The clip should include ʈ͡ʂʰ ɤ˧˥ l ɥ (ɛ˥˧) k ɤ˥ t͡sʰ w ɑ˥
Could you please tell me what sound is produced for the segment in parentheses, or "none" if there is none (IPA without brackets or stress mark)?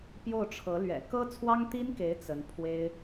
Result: ɛ̰˨˩